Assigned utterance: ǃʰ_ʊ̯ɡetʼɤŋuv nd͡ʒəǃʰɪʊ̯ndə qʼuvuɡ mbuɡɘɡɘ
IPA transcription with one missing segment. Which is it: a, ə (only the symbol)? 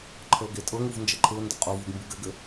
ə